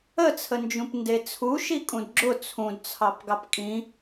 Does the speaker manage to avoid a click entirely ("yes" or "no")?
no